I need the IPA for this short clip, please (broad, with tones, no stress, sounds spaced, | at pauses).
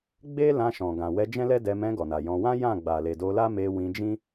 ɡ͡b e˦ l ã˧ ʃ ɔ̃˨ ɡ ã˨ w ɛ˧ d͡ʒ ɛ̃˦ l ɛ˦ d ɛ˧ m ɛ̃˧ ɡ ɔ˨ n a˨ j ɔ̃˧ w ã˦ j ã˦˨ ɡ͡b a˨ l e˨ d o˧ l a˦ m e˧ w ĩ˧ d͡ʒ ĩ˦